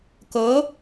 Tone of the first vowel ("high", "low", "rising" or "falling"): rising